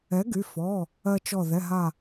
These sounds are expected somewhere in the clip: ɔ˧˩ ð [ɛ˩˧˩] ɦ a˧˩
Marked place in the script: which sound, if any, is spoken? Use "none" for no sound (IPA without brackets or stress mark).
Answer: ɛ˩˧˩